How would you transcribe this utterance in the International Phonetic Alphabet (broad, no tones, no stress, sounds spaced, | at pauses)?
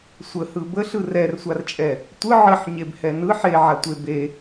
sʷ ə h ɯ b ə ɬ ɯ r ɛ r sʷ a r t͡ʃʼ ɛ | tʷ ɯ ʕ ə ħ ɲ e b h ɛ n ɯ ħ e ʕ a tʷ e b e